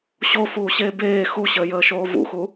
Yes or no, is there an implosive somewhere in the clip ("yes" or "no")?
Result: no